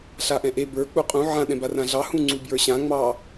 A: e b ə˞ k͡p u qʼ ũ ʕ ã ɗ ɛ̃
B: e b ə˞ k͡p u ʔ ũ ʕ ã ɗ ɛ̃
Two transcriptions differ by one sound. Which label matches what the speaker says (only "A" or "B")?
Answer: A